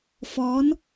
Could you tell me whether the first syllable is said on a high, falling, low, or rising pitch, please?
rising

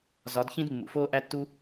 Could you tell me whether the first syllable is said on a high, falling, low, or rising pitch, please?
rising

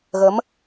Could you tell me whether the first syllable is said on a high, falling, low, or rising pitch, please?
rising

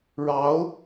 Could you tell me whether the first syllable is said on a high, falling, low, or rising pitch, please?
rising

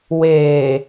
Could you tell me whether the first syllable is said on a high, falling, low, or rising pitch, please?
low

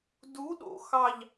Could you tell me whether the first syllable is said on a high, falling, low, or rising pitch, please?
rising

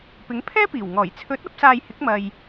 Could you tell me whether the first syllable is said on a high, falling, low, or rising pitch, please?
rising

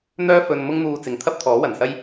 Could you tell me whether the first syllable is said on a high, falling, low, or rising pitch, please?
high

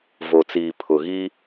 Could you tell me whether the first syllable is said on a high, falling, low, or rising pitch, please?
low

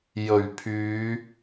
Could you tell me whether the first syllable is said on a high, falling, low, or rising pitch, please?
low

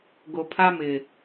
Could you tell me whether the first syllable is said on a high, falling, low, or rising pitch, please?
low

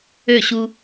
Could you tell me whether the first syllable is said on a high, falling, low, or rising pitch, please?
falling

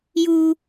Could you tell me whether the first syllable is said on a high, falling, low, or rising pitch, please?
low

